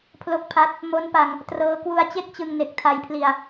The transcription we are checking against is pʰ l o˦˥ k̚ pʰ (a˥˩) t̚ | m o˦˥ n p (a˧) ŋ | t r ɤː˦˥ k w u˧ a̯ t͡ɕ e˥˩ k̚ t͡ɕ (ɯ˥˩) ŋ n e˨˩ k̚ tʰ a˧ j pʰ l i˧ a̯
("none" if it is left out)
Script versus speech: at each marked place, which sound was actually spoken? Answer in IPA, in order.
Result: a˦˥, a˧, ɯ˧

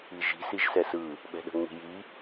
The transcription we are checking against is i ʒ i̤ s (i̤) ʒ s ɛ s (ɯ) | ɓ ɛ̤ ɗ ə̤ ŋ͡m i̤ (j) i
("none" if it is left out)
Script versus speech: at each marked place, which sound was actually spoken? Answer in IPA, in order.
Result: i, ɯ, j

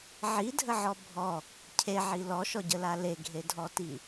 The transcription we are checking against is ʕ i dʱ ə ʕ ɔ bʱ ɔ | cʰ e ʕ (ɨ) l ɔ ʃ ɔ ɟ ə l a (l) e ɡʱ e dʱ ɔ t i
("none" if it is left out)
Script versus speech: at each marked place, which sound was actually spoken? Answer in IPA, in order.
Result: i, l

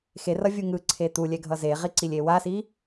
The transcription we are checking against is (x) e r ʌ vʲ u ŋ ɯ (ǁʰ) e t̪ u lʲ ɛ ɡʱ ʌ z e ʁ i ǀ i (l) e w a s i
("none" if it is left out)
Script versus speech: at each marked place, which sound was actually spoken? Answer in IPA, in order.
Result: x, ǀʰ, lʲ

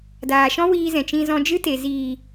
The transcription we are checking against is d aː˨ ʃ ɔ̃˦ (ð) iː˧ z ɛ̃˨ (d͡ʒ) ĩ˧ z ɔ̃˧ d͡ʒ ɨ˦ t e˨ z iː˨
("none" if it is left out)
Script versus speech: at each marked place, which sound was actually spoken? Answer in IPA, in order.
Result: w, t͡ʃ

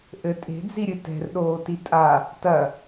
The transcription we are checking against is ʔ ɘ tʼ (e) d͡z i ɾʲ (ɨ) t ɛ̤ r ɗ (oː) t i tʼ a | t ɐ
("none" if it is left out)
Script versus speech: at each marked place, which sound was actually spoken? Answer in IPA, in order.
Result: e̤, ɨ, oː

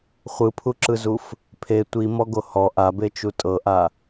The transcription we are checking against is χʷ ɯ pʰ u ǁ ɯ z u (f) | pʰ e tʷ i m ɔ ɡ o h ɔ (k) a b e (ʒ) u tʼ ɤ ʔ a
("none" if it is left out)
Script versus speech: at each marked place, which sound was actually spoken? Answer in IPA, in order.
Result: f, ʔ, t͡ʃ

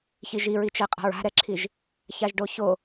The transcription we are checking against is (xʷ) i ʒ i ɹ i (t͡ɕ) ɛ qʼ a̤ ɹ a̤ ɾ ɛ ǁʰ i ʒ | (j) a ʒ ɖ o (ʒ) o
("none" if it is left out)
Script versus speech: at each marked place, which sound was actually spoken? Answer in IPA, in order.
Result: ç, t͡ʃ, ç, ç

